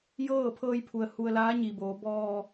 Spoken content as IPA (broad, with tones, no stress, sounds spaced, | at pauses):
j ɤː˥˨ pʰ ɤː˧ j pʰ u˩ ə̯ h u˧ ə̯ l aː˧˥ ɲ i˩ b oː˩˧ b ɔː˧